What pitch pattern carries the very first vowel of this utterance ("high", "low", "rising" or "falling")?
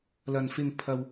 low